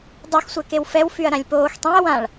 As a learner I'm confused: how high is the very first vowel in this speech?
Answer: high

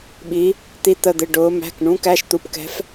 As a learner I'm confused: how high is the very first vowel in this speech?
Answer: high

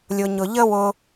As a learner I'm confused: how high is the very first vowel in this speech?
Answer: high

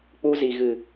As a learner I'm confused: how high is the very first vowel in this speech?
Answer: high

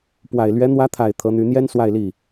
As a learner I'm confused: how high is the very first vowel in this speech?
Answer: low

